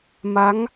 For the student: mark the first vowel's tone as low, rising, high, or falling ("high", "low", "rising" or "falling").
rising